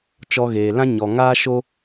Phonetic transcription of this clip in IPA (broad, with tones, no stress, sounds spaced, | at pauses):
t͡ʃ ɔ˧ ɣ eː˨ l ã˦ ɲ ɔ˨ ŋ aː˦ ʃ o˦